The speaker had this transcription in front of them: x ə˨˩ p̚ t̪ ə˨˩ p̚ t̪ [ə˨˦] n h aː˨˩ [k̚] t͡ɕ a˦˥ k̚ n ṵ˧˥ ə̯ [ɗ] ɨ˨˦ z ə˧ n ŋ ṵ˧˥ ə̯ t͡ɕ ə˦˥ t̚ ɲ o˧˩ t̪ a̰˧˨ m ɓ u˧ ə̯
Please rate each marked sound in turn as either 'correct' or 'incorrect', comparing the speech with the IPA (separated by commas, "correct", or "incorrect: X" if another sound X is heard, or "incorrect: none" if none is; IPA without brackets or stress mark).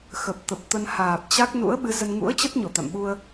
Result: incorrect: ə˧, incorrect: p̚, incorrect: ɓ